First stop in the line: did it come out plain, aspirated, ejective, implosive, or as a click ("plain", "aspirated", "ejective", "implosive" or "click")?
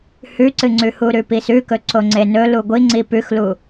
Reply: click